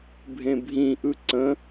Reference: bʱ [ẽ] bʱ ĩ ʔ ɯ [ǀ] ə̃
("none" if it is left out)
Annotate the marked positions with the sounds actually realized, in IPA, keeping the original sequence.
ẽ, ǀ

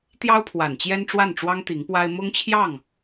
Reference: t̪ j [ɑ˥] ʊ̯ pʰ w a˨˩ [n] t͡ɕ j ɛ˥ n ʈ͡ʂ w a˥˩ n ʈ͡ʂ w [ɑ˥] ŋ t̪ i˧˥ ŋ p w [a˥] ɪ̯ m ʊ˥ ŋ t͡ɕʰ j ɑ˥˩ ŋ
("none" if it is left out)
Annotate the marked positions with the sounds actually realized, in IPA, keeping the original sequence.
ɑ˥, n, ɑ˥, a˥

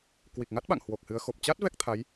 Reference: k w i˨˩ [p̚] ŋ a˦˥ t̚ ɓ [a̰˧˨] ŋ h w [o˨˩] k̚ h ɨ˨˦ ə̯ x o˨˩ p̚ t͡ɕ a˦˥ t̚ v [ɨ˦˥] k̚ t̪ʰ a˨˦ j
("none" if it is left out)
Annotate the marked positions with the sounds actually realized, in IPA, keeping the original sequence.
k̚, a̰˧˨, o˨˩, ɛ˦˥

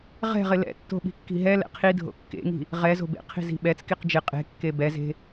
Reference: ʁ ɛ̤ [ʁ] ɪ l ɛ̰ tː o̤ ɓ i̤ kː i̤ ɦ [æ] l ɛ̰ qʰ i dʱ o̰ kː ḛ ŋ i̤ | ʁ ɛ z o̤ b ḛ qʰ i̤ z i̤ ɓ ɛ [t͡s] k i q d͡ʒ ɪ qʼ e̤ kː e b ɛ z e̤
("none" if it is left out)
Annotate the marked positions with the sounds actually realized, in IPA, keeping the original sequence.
ʁ, ɛ, t͡s

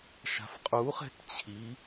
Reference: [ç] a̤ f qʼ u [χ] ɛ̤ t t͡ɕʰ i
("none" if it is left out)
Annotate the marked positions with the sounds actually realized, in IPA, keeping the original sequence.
ʃ, χ

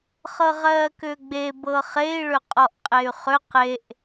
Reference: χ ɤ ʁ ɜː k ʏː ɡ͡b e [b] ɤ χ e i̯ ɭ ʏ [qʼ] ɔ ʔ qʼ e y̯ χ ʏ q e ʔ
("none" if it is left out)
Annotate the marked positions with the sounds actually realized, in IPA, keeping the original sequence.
b, qʼ

